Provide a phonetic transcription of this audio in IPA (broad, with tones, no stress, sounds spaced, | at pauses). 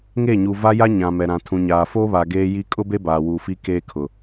ŋ e˦˨ ɲ u˨ v a˦ j a˦ ɲ ã˨ m ɛ˨ ɾ ã˨ tʰ ũ˨ ɲ aː˨ f oː˦ β aː˨ ɡ eː˦ j i˦ kʼ ʊ˦ b e˦ b aː˨ w uː˨ f i˦ k e˦ kʰ ʊ˨